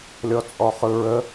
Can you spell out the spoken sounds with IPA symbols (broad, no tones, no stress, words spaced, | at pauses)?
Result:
lʲɔt͡sʼɔχɯɹə